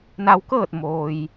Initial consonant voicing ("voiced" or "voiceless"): voiced